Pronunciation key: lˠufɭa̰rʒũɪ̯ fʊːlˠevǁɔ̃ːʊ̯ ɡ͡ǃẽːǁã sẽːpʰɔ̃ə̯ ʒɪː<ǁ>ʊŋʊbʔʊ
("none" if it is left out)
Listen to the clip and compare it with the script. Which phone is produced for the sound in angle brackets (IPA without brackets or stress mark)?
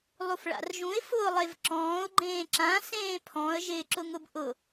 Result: ǁ